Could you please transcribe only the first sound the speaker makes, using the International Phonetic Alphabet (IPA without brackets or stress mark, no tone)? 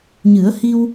ɲ